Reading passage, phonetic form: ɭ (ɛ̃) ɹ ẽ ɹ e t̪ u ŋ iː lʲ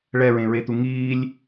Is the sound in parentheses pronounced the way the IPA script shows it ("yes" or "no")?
no